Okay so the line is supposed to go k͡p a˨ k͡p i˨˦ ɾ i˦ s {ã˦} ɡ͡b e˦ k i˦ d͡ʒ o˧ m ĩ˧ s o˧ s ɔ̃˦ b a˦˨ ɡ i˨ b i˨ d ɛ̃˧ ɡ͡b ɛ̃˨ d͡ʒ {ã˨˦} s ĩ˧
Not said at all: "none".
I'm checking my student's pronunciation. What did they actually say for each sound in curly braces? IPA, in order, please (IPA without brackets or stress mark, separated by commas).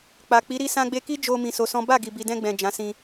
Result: ã˦, ã˨˦